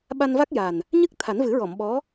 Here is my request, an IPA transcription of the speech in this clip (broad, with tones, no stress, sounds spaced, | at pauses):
ɓ a˧ n v a˦˥ k̚ j aː˨˩ n | ɲ ɨ˦˥ k̚ t̪ʰ a˨˩˦ n v ɨ˨˩˦ ɹ ɔ˨˩˨ m ɓ ɔ˧˥